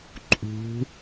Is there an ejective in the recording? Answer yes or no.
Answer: yes